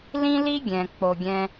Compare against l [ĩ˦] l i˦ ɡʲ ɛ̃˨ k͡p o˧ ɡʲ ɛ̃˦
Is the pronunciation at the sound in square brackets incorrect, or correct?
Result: correct